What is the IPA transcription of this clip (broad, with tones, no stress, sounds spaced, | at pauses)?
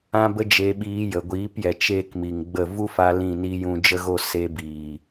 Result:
ã˦ b ə˦ d͡ʒ e˧ ɓ iː˧ j ə˨ ɡʷ iː˨˦ p j ɛ˨ t͡ʃ eː˦ k m i˨ ŋ ɡ͡b ə˦˨ v u˦ f a˧ l ĩ˦˨ n i˦ j ũ˧ d͡ʒ ə˦ ɣ o˦ s e˧ b iː˨